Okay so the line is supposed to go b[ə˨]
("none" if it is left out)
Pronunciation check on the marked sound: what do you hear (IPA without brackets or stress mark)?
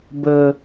ə˨